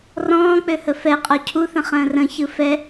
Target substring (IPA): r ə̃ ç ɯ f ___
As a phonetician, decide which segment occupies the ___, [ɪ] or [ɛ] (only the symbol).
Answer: ɛ